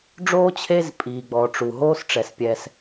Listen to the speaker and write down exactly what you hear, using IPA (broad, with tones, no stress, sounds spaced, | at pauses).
ɖ͡ʐ oː˥ t͡ɕʰ e˦ z pʼ iː˨ ɡ͡b ɔː˨ ʈ͡ʂ u˩ ɦ oː˥ s ʈ͡ʂ ɛ˩ s pʲ ɛ˨ s